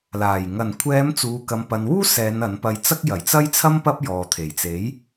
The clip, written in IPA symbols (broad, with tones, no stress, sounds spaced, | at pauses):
l aː˨˩ j ŋ ɐ˨˩ n kʷʰ ɛː˨˧ m t͡s uː˨ k ɐ˨ m p ɐ˨ n w uː˥ s ɛː˨˧ n ɐ˨˥ n p ɐ˧ j t͡s ɐ˥ k̚ j ɐ˨˩ j t͡s ɐ˥ j t͡sʰ ɐ˥ m p ɐ˥ p̚ j ɔː˨ t̪ʰ e˨˩ j t͡s e˨˥ j